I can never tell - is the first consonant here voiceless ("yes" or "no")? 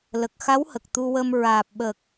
no